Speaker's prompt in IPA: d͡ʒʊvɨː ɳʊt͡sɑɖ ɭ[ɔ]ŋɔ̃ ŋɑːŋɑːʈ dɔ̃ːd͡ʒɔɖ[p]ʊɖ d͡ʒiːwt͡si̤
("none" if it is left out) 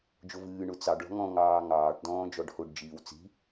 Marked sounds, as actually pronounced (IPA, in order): ɔ̤, h

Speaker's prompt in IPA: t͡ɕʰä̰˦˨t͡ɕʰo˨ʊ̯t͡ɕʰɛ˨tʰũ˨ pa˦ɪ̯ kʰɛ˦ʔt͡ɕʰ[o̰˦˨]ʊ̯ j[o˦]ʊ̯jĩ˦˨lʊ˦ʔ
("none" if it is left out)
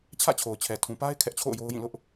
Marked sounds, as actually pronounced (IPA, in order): o̰˦˨, o˦

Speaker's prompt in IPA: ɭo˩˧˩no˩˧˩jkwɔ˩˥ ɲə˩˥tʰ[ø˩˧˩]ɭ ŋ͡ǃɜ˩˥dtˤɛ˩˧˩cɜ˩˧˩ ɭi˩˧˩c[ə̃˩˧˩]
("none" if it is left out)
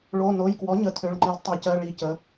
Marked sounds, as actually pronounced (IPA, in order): ø˩˧˩, ə˩˧˩

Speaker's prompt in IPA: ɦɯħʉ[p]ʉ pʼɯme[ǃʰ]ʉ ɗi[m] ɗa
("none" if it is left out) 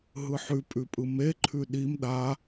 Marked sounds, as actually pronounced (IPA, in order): pʼ, ǃʰ, m

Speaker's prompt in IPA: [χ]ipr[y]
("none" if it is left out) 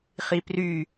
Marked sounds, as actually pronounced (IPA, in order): χ, y

